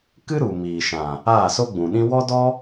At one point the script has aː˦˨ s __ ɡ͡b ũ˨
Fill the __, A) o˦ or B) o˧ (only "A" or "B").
A